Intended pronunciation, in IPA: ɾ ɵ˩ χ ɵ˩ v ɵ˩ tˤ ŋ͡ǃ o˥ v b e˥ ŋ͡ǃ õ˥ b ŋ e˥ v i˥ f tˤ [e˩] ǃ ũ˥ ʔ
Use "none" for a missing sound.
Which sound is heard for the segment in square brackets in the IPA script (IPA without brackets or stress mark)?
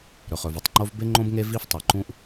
i˩